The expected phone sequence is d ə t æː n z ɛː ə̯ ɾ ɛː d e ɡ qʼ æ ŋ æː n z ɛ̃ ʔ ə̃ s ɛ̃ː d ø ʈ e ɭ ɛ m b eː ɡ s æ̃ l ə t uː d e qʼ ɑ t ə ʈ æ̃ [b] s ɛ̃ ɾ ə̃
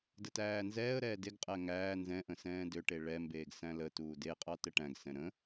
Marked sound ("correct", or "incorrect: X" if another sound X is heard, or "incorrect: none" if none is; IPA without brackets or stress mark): incorrect: ɡ